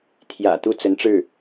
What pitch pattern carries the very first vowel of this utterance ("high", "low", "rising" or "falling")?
low